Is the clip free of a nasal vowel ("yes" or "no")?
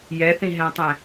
no